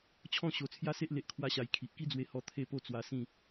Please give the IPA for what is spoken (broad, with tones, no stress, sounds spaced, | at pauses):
t͡ɕʰ ɔ̃˥˧ ɕ o˧ t͡sʰ j a˦ s e˦ ʔ l e˦ ʔ kʰ w a˦ ɕ a˧ j kʰ i˨ ʔ k i˦ d͡z w e˧ h ɔ˧ t̪ʰ e˥˧ p o˥˧ t͡s w a˧ s ĩ˥˧